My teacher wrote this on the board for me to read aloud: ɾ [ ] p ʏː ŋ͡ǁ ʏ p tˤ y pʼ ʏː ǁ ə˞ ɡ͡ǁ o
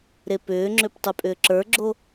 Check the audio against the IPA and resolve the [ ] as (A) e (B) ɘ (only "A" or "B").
A